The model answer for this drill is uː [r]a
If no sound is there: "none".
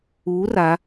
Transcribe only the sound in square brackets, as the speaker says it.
r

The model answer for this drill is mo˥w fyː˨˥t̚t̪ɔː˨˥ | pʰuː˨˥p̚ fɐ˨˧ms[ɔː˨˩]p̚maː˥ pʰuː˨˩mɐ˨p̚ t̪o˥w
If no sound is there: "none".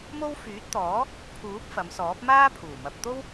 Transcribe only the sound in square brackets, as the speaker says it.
ɔː˨˥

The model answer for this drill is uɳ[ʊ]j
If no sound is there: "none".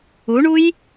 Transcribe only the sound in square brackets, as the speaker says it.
u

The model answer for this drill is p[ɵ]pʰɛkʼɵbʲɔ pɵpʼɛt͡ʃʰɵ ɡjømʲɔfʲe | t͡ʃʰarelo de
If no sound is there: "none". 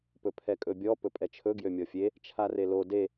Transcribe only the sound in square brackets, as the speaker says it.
ɵ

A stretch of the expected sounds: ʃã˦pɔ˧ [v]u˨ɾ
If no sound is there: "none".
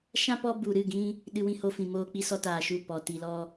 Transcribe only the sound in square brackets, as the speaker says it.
b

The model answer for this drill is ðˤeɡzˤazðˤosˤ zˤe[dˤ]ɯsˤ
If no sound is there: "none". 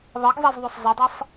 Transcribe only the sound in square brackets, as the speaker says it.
dˤ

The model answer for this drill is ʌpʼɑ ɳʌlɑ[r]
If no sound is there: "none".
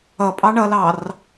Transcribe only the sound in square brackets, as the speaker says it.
r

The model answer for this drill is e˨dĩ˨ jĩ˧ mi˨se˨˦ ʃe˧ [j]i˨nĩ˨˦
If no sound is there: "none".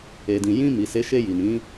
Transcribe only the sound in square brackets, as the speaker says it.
j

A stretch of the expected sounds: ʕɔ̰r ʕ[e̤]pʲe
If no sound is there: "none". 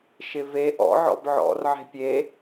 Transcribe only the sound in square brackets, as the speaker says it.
e̤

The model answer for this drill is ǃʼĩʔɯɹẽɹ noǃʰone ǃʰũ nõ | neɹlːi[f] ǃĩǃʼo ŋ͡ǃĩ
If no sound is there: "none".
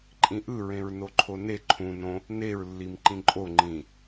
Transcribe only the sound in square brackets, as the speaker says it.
m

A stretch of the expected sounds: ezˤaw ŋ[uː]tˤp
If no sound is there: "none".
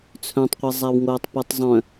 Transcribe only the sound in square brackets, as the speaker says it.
oː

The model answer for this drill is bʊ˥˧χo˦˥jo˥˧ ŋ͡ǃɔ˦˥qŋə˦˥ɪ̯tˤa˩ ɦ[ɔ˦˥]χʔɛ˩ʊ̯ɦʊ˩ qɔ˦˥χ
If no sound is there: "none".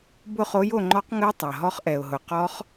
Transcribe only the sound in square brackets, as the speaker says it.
ɔ˦˥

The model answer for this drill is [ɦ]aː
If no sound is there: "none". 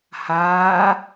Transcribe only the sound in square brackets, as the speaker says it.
h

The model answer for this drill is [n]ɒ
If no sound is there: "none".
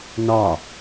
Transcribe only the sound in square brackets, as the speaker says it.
n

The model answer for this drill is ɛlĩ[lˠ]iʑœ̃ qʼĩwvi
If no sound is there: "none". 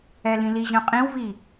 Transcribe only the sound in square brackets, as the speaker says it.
l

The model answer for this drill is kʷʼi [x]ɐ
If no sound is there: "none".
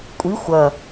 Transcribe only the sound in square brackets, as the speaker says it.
xʷ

